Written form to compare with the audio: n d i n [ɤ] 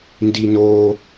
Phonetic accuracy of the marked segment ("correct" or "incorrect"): incorrect